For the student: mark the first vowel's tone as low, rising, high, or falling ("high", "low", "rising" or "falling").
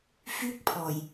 high